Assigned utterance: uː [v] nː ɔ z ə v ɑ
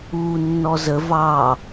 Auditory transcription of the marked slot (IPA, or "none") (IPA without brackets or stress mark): none